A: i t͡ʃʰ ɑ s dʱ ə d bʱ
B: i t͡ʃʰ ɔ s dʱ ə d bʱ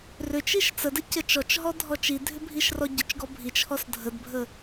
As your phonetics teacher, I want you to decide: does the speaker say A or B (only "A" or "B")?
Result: B